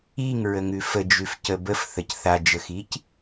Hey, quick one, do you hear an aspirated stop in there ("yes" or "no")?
no